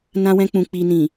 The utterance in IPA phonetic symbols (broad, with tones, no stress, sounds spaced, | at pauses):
n ã˧ w ɛ̃˧ k͡p ũ˨ k͡p i˨ n ĩ˨